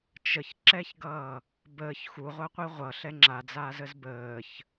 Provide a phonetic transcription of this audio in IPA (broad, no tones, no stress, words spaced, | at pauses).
t͡ʃəçǁɛçɡʌː | bəːç xuʁʷaqʷi ʁʷʌɬɛ ŋ͡ǁad͡zaːzəz bəːç